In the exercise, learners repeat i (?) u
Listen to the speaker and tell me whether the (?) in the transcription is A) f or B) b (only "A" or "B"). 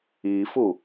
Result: A